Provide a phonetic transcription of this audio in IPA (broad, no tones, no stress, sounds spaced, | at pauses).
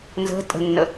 n z ə̤ tʼ ə̤ nː ə